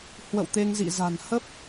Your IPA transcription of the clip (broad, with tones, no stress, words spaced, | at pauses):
hwə̰˧˨wt̪e˧ŋzḭ˧˨ za̤˨˩nhə˦˥p̚